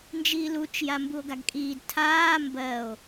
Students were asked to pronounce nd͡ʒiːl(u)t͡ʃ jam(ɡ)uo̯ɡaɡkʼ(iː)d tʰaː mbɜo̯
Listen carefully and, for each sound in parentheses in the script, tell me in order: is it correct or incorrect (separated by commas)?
correct, incorrect, correct